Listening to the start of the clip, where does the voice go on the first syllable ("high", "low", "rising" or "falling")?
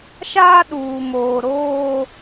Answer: high